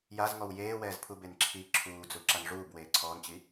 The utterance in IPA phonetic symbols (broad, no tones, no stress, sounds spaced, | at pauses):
j a z ŋ ɔ w j eː w ɛː z pʰ u b e n ǁʰ i ǁʰ uː d͡z u ǁ a n ʐ uː b w eː ǀʰ ɔː n t͡ɕ i